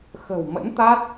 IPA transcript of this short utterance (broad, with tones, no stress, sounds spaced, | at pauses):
x ə̤˨˩ w m ə̰˧˥ n t̪ a˦˥ t̚